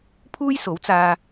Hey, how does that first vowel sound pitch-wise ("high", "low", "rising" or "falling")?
high